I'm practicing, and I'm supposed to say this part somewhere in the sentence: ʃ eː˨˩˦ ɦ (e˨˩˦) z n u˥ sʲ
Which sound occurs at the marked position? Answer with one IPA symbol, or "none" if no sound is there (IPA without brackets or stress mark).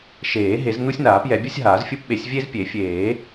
e˨˩˦